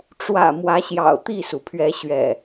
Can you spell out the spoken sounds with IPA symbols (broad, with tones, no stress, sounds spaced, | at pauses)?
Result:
ʈ͡ʂ w ä̰˨˩ m w ä˨˦ ɕ j ɑ̰˨˩ ʊ̯ t̪ i˥˨ s u˩ pʰ ɥ ɛ˨˦ ɕ ɥ ɛ̰˨˩